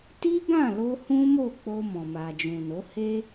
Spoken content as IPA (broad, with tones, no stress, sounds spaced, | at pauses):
t i˦ ɡ ã˦˨ l o˧ h ũ˦ m o˦˨ k͡p o˧ m ɔ̃˨ m a˨ d͡ʒ ũ˨ n o˨˦ h e˦